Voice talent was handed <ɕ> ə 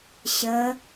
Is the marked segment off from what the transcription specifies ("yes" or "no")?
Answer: no